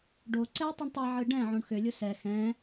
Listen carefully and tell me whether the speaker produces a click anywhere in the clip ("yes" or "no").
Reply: yes